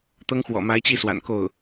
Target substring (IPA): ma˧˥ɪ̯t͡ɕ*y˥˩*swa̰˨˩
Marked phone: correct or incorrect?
incorrect